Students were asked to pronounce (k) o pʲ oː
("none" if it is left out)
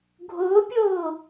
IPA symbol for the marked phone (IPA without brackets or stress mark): ɡʱ